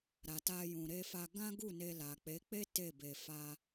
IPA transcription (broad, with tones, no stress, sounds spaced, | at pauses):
ɾ a˨ t a˧ j ũ˨ ɾ e˧ f a˧ ɡ ã˦ ɡ u˦˨ n e˧ l a˨ k͡p e˨˦ k͡p e˦ t e˦˨ b e˧ f a˧